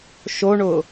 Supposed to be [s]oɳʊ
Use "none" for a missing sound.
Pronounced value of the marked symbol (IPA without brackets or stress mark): ʃ